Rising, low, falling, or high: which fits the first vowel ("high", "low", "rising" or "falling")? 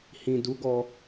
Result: low